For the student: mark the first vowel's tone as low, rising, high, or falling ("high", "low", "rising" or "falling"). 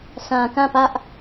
low